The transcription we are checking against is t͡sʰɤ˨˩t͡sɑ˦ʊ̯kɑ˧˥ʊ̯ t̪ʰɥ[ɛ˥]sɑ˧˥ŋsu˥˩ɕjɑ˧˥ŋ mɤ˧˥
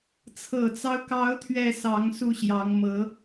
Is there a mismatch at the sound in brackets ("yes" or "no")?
yes